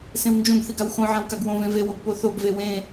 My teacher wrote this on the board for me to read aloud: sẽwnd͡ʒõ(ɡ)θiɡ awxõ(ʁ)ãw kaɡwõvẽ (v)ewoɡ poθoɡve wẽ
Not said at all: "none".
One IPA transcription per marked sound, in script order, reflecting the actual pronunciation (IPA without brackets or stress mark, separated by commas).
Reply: ɡ, ʕ, v